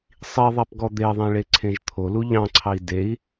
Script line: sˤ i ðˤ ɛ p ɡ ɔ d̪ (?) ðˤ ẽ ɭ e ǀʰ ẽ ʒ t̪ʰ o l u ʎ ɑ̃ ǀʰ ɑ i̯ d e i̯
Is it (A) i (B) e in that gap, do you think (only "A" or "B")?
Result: B